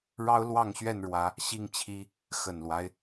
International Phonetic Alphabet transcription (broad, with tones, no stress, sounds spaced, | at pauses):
ɻ ɑ˦ ʊ̯ l w ɑ˥˨ ŋ ɕ ɥ ɛ˥˨ n ɻ w ä˨˦ | ɕ i˥˨ ŋ t͡ɕʰ i˦ | x ə˨˩ n l w a˦ ɪ̯